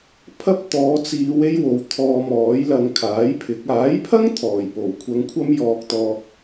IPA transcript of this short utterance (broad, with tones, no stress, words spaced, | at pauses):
pʰɐ˥p̚ t̪ɔː˨˧t͡siː˨˧w e˥jwo˨w t̪ʰɔː˧mɔː˨˥jlɐ˧ŋ kʰaː˨˥jpʰɪ˨˥k̚ aː˨˥jpʰɐ˥ŋ t̪ʰɔː˨˩jpo˨˩wkʷʰɐ˧ŋ kʷʰɐ˥mjɔː˧k̚t̪ɔː˧k̚